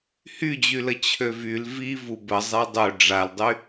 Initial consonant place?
glottal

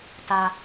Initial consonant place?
alveolar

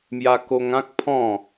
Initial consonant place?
labial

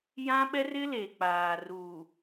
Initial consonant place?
palatal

